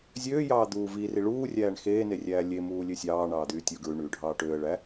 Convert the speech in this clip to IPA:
zʲøːjɑː d̪uːvi riɭuːrʲæːɳ xeːnerʲæː lʲe muːlʲøsʲɑː ɳɑːd̪yːtʲu ɡɹyɳyː ɖʱɑːʈøːə̯ ɭæ

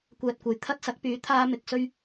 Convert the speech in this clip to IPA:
kʷɛː˧t̚kʷɐ˨j t̪ʰɐ˥t̚sɐ˨˥k̚pyː˨˥ t̪ʰaː˥ mɪ˧k̚sɵ˥ɥ

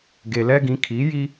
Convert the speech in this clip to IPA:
ɡe˨lɛ˦ɡĩ˨˦ kʰi˨˦ji˦

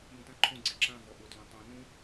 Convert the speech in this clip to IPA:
jũtãǃʰõɡ͡ǀe ǁãvɔ ʔʊtlõ tˤõ nũ

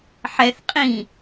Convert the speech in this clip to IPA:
ħɛθ qʼĩ

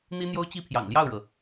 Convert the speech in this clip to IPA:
n̪i˥n̪jo˥ʊ̯t͡ɕi˥ pʰjɑ̰˨˩ŋljɑ˥˩ʊ̯ɻɤ˩

